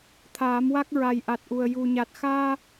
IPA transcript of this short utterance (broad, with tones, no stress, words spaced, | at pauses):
t̪ʰaː˨˩˦mwa˦˥k̚ ɹa˨˩jʔa˨˩t̚ʔu˨˩ə̯ ju˨˩ɲa˨˩t̚ xaː˧